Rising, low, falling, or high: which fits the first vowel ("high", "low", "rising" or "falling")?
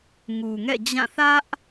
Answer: low